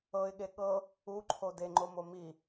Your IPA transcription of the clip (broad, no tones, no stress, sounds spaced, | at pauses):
ɤ ɪ̯ ɠ e ɠ ɤ | u ǃʰ o d e ŋ͡ǃ o m o m i